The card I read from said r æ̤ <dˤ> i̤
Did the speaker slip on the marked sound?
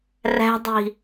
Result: no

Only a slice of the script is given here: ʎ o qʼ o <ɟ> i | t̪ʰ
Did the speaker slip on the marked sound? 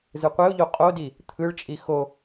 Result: yes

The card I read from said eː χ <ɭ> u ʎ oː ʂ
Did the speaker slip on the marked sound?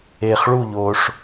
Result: no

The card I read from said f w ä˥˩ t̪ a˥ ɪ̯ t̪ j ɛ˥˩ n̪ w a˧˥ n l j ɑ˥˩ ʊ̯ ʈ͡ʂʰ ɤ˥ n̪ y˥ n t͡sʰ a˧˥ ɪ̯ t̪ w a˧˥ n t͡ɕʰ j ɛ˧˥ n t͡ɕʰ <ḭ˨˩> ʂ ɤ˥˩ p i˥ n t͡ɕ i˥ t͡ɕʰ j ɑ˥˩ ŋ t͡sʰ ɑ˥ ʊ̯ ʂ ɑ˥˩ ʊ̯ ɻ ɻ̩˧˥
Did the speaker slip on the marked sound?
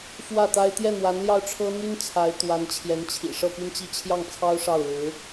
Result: no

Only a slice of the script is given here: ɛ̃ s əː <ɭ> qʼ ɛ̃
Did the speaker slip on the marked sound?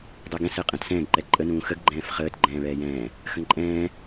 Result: yes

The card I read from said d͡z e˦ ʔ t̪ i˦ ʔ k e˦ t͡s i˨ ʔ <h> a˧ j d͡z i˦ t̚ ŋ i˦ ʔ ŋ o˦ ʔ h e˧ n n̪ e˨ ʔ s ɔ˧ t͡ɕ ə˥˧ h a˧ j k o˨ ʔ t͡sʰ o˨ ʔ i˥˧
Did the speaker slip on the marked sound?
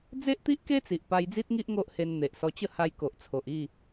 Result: yes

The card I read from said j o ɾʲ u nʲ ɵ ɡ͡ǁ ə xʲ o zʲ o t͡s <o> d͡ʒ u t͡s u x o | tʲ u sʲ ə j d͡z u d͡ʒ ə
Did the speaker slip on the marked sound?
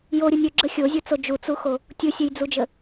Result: no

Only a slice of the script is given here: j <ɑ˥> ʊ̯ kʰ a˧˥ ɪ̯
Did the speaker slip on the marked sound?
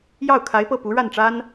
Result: yes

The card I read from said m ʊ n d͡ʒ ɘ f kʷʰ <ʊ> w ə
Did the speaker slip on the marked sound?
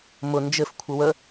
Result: yes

